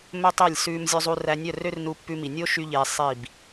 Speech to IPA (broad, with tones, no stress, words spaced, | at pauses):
mɵ˦tˤe˦˨lʲ sʉː˦mzʲɵ˦zˤu˦ ræ˧nʲœ˦˨rø˦rnu˧ pːʉ˧mi˨nʲo˦ ʃy˦ʎeː˧sˤi˦˨b